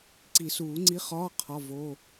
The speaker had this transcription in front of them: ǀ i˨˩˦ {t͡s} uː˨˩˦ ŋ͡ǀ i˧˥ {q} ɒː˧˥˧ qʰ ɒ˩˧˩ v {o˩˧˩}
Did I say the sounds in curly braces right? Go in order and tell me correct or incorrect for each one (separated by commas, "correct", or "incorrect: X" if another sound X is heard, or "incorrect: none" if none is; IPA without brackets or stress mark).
incorrect: s, incorrect: χ, correct